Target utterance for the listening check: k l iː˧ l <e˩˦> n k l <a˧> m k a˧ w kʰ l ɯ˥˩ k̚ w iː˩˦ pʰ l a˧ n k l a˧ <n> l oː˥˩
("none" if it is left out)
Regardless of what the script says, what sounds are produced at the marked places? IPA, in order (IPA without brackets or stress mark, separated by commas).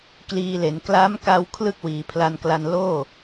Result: e˩˦, a˦˥, n